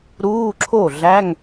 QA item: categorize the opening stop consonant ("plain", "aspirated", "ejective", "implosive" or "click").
click